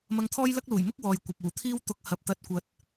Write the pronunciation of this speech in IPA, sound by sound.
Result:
m ɐ˧ ŋ t̪ʰ ɔː˥ j l ɐ˥ k̚ l uː˨˩ j m ʊ˥ k̚ w ɔː˨ j kʷ ɐ˨ p̚ uː˨˩ t̪ʰ iː˥ w t̪ ʊ˨˥ k̚ h ɐ˨ p̚ t̪ ɐ˨˥ t̚ kʷ ɐ˨ t̚

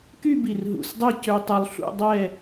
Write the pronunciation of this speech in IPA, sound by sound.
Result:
k y˥˧ b i˧˩ r ɦ ṵ˧˩ s dˤ ɛ˥˧ c ø˧ tˤ œ˧ lˠ ɬ ṵ˥˧ dˤ ɛ˥˧

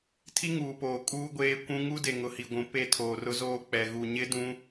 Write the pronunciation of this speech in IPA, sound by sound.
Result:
tʰ i˦ ŋ uː˨ p oː˨ kʼ uː˦ ɡʷ eː˦ kʷ ũ˦ ŋ u˦ d e˨ ŋ ʊ˨ h i˨ ɡʷ ũ˨ p e˦˨ tʰ oː˨ r ʊ˦ z oː˦ k͡p ɛ˨ ɣ u˦˨ ɲ ɪ˦ d ũ˦

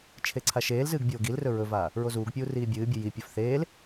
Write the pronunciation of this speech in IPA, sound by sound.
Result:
t͡ʃʰ e ǀʰ a ʃ eː l z ɨː ɡ bʲ oː ɡ i l r ɵ ɹ ɵ v aː | ɹ o z uː ɡ pʲ uː r iː bʲ ɨː bʲ ɨ j i pʲ ɵ f θ eː l

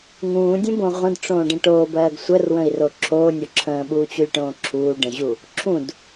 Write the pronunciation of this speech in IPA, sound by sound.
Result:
ŋ ũː dʲ ə̃ b õ ʁʷ ə̃ d ʈ͡ʂ õː ɖ ə̃ ʈ oː b ɜː ɡ sʷ ə r w ə̃ i̯ r o ǁʰ oː nʲ o ǁʰ ə̃ː ɓ uː t͡ɕ u lʲ ʈ õː ǁʰ uː ɖ ə̃ ʑ u | ǁʰ ũ d

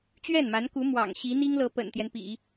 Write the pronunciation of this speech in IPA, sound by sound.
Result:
t͡ɕ ɥ ɛ˥˩ n m a˧˥ n k u˧˥ m w ɑ̰˨˩ ŋ ɕ i˧˥ n̪ i˥ ŋ l ɤ˧˥ p ə̰˨˩ n t̪ j ɛ˦ n p ḭ˨˩˦

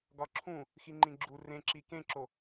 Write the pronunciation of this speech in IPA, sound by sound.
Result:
ɡ ɒ ǁʰ ũ | x i ŋ͡ǃ ĩ ɡ͡ǁ u r ẽ ǁ i k ẽ ǁ o

